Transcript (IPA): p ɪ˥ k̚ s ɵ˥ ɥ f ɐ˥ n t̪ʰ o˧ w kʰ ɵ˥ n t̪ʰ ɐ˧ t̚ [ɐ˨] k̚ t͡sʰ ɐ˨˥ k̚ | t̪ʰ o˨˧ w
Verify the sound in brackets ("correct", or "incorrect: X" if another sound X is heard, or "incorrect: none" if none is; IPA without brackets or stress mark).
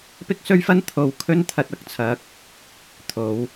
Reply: incorrect: ɐ˨˥